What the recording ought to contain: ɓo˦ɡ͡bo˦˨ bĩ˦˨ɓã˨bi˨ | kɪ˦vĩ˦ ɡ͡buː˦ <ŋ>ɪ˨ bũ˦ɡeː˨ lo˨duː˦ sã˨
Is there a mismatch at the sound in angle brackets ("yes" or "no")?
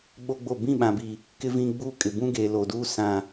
yes